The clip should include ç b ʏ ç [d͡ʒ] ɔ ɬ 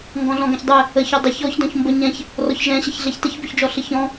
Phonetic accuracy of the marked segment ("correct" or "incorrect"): correct